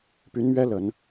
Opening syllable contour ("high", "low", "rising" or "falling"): rising